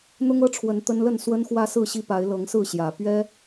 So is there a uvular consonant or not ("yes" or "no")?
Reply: no